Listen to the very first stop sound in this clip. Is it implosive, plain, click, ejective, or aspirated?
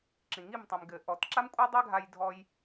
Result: click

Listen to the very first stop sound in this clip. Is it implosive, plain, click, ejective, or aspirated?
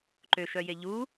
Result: click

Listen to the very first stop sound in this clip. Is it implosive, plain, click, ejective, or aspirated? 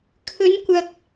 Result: aspirated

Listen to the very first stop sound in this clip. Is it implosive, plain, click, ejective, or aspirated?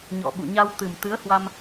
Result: implosive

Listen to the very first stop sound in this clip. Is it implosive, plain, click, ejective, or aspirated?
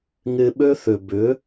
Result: implosive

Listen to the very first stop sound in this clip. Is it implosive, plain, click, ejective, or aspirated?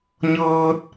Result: plain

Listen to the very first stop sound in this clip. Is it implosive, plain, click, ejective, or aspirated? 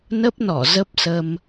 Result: plain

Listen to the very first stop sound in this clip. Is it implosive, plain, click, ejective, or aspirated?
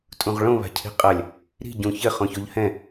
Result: ejective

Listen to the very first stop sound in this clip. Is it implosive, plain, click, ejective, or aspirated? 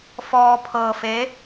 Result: aspirated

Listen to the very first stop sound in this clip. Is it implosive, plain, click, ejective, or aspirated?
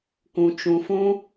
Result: plain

